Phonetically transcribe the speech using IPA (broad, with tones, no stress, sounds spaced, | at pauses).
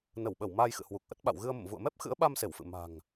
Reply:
n ə˧˩ w ɓ ə˧˩ w m aː˧ j x ɨ̰˧˨ h w u˨˩ k̚ ʔ ə˦˥ t̚ ɓ a̰˧˨ w ɣ ɨ˧ ə̯ m ə̰˧˨ m v ṵ˧˨ ə̯ m ɛ˦˥ p̚ x ɨ̰˧˥ ə̯ ɓ a˧ m s e˧˩ w f ɨ̰˧˨ m a̤˨˩ ŋ